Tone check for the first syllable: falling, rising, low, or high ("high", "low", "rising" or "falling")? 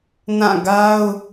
falling